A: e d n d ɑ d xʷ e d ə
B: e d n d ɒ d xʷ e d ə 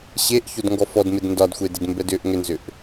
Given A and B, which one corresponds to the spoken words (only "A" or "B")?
B